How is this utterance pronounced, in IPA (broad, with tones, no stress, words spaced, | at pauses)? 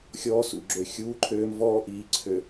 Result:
xʲɔː˦sṵ˨ɡ͡ǁø˨ xʲuː˦ǃʰøː˦mvɔː˦ ʔiː˨ ǀʰø˨